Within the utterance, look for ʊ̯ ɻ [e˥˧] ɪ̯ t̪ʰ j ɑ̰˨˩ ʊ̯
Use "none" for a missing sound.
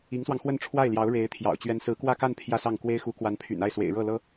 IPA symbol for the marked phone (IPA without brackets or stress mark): e˧˥